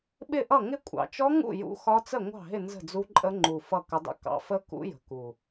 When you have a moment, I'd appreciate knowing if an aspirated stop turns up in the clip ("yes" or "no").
no